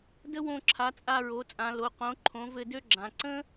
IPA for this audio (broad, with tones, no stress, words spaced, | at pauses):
də˥wõ˦˨ǁʰa˩˥ t͡sʼa˦˨ɹo˩˥t͡sʼã˩˧ lo˩˧qõ˩˥ ǃʰõ˩˥vɘ˦˨dø˥ ɡ͡ǁã˩˧ ǀə̃˥